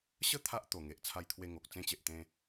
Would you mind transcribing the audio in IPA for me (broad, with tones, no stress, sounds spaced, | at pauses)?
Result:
ɕ ə˥˧ t̪ʰ a˦ ʔ t̪ o˨˩ ŋ e˨ ʔ t͡sʰ a˧ j t̪ʰ w e˧ ŋ o˨ k̚ t͡s ẽ˧ t͡ɕ e˨ ʔ t̪ ẽ˧